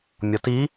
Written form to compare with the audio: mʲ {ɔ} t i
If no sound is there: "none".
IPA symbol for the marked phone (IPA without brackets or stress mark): ɔ